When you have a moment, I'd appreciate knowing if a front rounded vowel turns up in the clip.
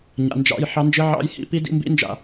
no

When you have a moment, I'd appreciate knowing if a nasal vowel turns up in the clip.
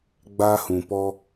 yes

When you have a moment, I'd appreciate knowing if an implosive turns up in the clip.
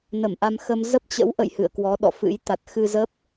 yes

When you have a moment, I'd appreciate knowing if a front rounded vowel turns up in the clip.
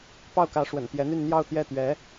yes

